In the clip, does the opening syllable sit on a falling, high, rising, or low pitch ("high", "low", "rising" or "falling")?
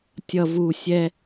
low